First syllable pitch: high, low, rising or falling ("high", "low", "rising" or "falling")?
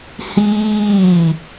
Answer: falling